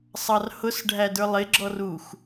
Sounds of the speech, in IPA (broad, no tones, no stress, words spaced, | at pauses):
sˤɑrhʊs ɖʱædə˞lˠɪ ɡ͡ǁɔrux